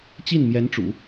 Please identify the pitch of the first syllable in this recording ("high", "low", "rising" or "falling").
falling